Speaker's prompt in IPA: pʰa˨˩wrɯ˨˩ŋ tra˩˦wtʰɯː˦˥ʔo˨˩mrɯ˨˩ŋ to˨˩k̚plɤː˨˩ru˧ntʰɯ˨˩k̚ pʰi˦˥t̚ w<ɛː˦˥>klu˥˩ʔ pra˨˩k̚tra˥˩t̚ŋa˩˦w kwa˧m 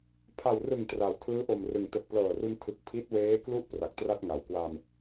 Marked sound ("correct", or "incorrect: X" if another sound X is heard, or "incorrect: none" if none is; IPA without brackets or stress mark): incorrect: eː˦˥